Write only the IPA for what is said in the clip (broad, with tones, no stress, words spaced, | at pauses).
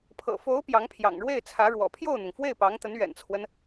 pʰɤ̰˨˩fo˧˥ʊ̯ pjɑ˧˥ŋpʰjɑ̰˨˩ŋɻwe˥˩ɪ̯t͡sʰä˧˥ ɻwɔ̰˨˩pʰjo˥˩ʊ̯n̪ʊ˩ŋ fwe˥˩ɪ̯pɑ˧˥ŋt̪ə˧˥n ɥɛ̰˨˩nt͡sʰwə˦n